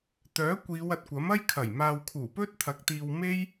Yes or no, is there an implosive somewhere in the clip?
no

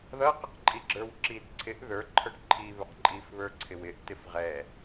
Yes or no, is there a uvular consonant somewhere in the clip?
yes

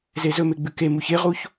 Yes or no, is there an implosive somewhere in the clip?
no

